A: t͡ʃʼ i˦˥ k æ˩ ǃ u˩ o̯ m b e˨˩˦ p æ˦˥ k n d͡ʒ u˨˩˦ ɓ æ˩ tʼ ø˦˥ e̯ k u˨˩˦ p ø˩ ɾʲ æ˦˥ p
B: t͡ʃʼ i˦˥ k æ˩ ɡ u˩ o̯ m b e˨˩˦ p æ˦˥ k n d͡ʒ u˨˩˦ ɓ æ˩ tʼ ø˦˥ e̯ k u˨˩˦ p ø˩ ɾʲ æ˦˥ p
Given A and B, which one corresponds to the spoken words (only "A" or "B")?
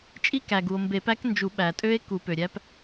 B